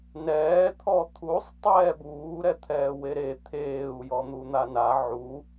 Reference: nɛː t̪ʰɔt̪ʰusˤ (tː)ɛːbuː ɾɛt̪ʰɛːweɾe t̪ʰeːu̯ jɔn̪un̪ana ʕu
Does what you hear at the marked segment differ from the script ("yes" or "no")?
yes